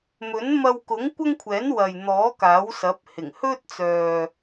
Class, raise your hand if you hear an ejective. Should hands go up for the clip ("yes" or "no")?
no